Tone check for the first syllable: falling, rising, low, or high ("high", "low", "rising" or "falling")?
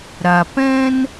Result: low